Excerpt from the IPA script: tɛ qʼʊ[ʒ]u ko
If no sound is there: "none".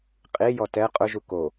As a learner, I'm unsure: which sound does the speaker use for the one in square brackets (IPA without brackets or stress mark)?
ʒ